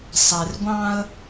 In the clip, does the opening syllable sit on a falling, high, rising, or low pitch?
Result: low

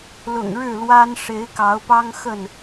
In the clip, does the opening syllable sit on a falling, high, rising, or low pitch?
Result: low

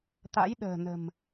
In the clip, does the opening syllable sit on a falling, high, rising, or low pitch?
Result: rising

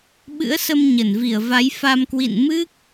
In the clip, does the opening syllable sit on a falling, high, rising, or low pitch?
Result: rising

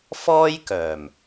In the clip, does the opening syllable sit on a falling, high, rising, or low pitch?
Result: high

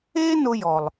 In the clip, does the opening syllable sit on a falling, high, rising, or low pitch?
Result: high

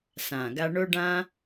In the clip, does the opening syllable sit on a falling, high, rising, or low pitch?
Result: low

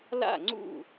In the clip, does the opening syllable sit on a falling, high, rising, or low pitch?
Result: falling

